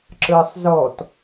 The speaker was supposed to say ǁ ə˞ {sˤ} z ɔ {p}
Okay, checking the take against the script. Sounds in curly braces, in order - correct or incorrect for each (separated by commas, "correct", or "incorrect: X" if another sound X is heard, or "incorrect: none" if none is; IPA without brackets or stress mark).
correct, incorrect: t